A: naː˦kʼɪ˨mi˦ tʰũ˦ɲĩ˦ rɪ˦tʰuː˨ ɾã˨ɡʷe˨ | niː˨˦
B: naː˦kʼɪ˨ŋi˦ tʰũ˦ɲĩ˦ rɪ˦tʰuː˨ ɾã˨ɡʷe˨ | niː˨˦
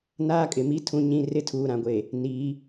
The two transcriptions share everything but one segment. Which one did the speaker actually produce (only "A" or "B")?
A